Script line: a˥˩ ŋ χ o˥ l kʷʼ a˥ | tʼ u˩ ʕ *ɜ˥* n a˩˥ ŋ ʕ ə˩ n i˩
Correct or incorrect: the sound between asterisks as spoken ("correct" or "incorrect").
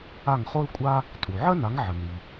correct